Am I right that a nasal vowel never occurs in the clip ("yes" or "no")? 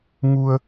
yes